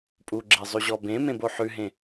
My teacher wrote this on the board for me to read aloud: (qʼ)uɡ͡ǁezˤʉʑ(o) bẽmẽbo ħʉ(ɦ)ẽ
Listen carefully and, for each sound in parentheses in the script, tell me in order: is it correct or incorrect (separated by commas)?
incorrect, incorrect, correct